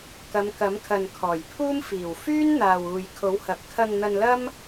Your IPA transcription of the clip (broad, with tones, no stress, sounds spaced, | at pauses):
k ɐ˨˧ m k ɐ˨˥ m kʰ ɐ˨ n kʰ ɔː˨˩ j pʰ uː˥ m f iː˨˩ w f yː˥ n n̪ aː˨ w uː˨ j kʰ o˨˥ w h ɐ˨ p̚ kʰ ɐ˧ ŋ n̪ ɐ˧ n l ɐ˥ m